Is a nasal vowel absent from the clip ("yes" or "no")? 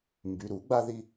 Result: yes